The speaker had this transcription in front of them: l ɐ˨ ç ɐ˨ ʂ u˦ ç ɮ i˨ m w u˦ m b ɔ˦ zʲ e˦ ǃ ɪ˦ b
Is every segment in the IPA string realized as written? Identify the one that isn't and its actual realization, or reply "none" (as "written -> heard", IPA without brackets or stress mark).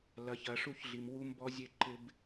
none